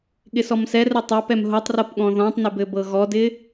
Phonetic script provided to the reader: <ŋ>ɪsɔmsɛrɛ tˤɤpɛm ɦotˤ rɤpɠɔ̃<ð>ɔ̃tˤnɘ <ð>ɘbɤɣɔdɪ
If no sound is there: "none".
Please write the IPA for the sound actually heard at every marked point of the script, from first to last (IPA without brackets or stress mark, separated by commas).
ɠ, ð, b